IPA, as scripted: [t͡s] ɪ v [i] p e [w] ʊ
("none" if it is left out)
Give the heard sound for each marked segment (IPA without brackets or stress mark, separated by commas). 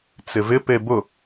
t͡s, ɪ, b